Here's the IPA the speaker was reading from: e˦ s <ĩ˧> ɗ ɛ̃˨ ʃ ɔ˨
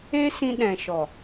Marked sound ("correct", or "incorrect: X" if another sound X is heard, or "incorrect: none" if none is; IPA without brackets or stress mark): correct